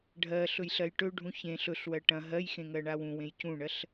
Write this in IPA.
ɖʱɜ ɬɵjɬɜjʈɵɖʱũ çẽ ɬɵɬwɜ ʈɐ̃ ɦɜjxẽ ŋɜɳawũwẽj cũɳɜɬ

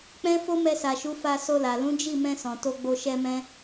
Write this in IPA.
k͡pɛ̃˦ fo˦mɛ˧sa˨ʃu˨˦ fa˧so˧la˨ lũ˨˦d͡ʒi˦˨mɛ̃˧ sɔ̃˨to˧ ɡ͡bo˧ ʃɛ˦mɛ̃˦

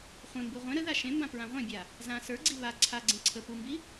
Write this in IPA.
χʷẽmbu ʁʷẽ ɾəða ʃẽmbã pɹãʁʷẽbʲa | zã sə˞ɡ͡ǀi βa ǀʰaɡ͡ǀẽ ǀʰə pumbi

